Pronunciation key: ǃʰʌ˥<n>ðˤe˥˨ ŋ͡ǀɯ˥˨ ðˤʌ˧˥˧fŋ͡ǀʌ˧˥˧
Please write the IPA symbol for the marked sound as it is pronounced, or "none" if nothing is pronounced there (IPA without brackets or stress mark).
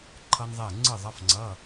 n